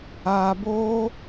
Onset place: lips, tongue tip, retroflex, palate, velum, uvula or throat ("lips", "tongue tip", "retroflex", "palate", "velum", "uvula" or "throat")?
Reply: lips